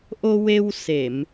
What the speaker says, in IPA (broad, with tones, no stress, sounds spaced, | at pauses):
ʔ o˧ w e˧ w s e˨˩˨ m